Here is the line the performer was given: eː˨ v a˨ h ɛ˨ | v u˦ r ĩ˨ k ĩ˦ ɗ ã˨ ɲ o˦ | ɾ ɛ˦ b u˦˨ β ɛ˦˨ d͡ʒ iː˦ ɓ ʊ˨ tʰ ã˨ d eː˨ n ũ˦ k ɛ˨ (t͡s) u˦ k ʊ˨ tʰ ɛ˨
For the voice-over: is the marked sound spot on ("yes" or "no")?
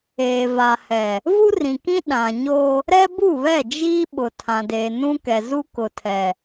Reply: no